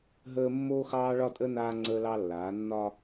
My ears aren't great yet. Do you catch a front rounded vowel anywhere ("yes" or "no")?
no